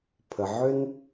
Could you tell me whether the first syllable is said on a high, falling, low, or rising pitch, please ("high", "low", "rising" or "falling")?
low